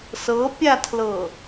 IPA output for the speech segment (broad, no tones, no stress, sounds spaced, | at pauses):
s ɤ pʲ a tʰ l ɤ